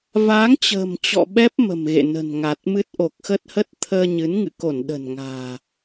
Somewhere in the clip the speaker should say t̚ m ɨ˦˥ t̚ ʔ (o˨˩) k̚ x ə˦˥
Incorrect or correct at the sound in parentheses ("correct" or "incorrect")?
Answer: correct